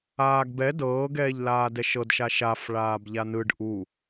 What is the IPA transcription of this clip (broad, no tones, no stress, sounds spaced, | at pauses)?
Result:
aː ɡ b ɛ d ɤː ɡ ɛː ʎ l aː d ɛ ʃ ɤ d ʃ a ʃ a f ɭ aː b ʎ a n ɯ ɖ ʔ u